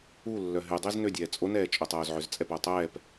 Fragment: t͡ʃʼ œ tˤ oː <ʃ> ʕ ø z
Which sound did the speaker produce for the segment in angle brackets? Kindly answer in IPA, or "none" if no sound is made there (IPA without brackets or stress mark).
z